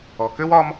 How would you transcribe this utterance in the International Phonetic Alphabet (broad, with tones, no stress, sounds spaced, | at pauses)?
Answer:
ɔ˩ k ø˥ w ɒː˥ m